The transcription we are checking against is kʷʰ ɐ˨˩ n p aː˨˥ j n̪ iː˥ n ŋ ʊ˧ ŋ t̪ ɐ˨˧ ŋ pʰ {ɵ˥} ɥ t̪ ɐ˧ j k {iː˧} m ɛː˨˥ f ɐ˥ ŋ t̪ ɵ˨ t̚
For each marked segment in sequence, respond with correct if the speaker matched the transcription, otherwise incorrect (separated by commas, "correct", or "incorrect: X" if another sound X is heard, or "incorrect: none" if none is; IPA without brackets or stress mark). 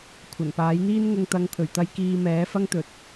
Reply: incorrect: ɵ˨˩, correct